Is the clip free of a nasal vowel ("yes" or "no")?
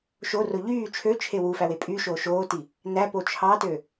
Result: yes